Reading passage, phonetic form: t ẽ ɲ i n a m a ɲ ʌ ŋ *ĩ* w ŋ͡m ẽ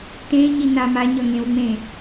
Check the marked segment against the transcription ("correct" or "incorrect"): incorrect